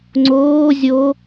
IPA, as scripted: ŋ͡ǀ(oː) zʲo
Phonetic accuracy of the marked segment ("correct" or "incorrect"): correct